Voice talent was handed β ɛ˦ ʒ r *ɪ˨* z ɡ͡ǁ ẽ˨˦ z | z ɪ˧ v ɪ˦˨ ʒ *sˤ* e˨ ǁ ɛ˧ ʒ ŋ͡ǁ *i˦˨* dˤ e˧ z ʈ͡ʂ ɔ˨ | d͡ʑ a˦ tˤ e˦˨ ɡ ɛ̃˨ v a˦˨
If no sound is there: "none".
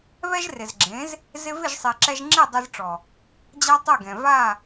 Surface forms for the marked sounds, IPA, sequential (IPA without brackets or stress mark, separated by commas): ɪ˨, sˤ, i˦˨